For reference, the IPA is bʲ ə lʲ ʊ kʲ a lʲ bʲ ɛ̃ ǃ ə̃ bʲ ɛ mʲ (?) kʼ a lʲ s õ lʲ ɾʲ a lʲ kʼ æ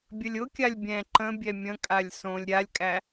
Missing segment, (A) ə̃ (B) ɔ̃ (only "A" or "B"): A